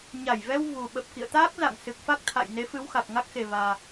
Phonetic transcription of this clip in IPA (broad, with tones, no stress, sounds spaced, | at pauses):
ɲ a˧˩ j v ɛ˧ w v u˨˩ ɓ ə˨˩ p̚ k ḭ˧˨ ə̯ t̪ aː˦˥ k̚ z a̰˧˨ ŋ s ɨ˨˩ k̚ f a˦˥ k̚ t̪ʰ a̰˧˨ j n e˨˦ f ɨ˨˦ w x a˨˩ k̚ ŋ a˦˥ k̚ x e˨˩ v aː˨˩